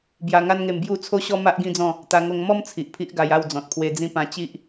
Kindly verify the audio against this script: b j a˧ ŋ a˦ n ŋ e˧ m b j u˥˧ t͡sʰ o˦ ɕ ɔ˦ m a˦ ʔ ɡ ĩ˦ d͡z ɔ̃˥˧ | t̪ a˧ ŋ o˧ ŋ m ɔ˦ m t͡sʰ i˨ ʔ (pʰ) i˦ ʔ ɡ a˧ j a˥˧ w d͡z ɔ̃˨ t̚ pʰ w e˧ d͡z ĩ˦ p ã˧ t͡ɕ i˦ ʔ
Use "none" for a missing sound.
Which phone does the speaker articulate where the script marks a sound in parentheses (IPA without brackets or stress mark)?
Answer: pʰ